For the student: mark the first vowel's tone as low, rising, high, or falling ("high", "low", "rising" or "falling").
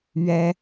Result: high